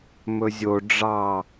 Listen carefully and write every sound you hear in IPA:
mɵzʲo ɖ͡ʐɑ

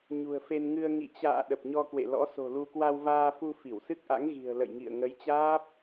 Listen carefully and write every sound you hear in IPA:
ɲṳ˨˩ə̯fe˧nŋɨ˧ə̯ ŋḭ˧˨t͡ɕa̰ː˧˨ ɗə˨˩p̚ɲɔ˧kwḛ˧˨lɔ̰˧˥ so̤˨˩lu˧ kwa˧wvaː˧fu˧ fi˧˩wsɨ˦˥k̚ʔa̰˧˥ŋ ɣi̤˨˩ə̯lə̰˧˨jŋḭ˧˨ə̯ ŋə˨˦jt͡ɕaː˦˥p̚

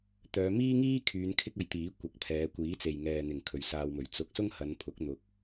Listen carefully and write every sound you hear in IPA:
t̪œː˨˧miː˥ŋiː˥kʰyː˨˧n kʰɪ˥k̚ɐ˧jt̪iː˨˥ kʷɐ˨˥k̚pʰɛː˨˧ kʷiː˨˥t͡se˨j ŋɛː˨n̪ɪ˨˩ŋ kʰɵ˨ɥsaː˧wmɵ˨˩ɥ t͡sʊ˨˥k̚ sʊ˥ŋhɐ˨˧npʰʊ˨˥k̚ n̪ʊ˧k̚

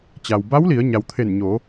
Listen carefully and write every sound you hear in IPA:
t͡ɕa˩wba˧˥wli˩˧ə̯ ɲa˩wt̪ʰe˧˩nɲo˩˧

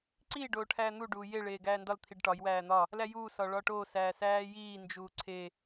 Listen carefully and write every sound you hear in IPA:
ǀi ɖoːʈʰæːn̪u ɖuːje ɭeːɡæːndɒl t̪ʰiɖʈɒj wæːn̪ɒ | læjuː sɒɭɒʈoː sæːsæːjiː nd͡ʒuːǀʰe

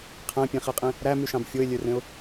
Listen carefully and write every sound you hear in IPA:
qʰæ̃pʲẽχiqʼĩ | ɾæmyʃɑ̃b fʲoɪ̯lʲørẽʊ̯

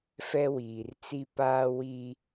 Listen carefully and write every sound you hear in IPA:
fɛ˦wiː˨r t͡si˦paː˦ wiː˦

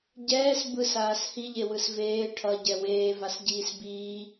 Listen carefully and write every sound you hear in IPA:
ɟɛːs bɯs aːshiʎewɯs veː ʈʰʌɟɛ weːvas ɟiːsbiː

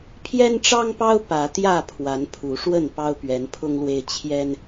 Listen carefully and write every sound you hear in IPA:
pʰjɛ˦nʈ͡ʂɑ˦ŋpɑ˦ʊ̯ pä˨˦t̪jä˥˨ pʰwa˨˦npʰu˨˦ ʂwə˥˨npɑ˦ʊ̯ pɥɛ˨˦npʰʊ˦ŋlwe˦ɪ̯ t͡ɕʰjɛ˦n

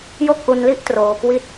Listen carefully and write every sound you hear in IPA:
jo˥˩k̚ʔu˧nli˥˩ʔ troː˧ kwi˥˩t̚

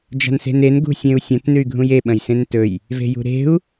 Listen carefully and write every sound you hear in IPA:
d͡ʒa̤nse̤nen ɡṳsʲẽu̯sʲɐ̃t nʉy̯ɡʱũje ɓɐ̃jsẽntɵj | ve̤jṳɾe̤u̯

